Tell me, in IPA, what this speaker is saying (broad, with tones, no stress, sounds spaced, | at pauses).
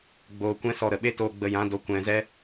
ɡ͡b oː˧ kʷ ɛ̃˦ s ɔ˧ ɾ ə˨ ɓ e˦ t oː˧ ɡ͡b ə˧ j ã˨˦ d o˧ kʷ ɛ̃˨ z ɛ˧